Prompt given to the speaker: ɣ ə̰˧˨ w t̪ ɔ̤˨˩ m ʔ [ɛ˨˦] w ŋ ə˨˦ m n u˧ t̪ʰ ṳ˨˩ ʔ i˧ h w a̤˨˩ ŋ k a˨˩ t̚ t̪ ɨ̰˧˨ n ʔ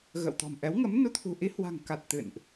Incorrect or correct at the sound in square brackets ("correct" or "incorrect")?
correct